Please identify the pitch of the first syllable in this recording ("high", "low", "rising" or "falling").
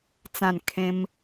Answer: falling